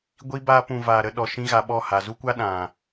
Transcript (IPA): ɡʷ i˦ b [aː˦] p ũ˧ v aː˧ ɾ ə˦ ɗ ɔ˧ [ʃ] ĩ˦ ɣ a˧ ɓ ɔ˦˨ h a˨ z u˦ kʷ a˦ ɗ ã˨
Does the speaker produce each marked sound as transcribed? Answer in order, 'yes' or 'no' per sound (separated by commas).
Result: yes, yes